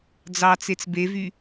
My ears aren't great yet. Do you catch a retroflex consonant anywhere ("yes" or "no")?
no